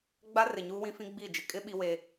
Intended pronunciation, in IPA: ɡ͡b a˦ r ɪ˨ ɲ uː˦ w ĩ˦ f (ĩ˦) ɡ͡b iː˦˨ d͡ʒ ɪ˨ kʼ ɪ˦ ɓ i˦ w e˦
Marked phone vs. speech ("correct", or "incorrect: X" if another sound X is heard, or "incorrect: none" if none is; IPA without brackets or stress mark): correct